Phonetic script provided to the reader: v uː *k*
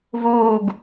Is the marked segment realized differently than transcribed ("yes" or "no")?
yes